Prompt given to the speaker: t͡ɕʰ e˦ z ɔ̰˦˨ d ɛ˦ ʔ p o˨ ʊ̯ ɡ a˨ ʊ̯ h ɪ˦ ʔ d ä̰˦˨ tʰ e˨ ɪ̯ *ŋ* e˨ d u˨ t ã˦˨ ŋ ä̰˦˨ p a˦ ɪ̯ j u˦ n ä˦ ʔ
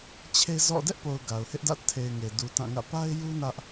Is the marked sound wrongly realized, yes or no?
no